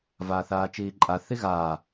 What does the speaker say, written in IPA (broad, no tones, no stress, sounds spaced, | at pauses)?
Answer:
v aː θ aː t͡ʃ iː ǃʼ a θ i ɣ aː